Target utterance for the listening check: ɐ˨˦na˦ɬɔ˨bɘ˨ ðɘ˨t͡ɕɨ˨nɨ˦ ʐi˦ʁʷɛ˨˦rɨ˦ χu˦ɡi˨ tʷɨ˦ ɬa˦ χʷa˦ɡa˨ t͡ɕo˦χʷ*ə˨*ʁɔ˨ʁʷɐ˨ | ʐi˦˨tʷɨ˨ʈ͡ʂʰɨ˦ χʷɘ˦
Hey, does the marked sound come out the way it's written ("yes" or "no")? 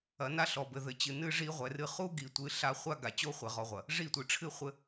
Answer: no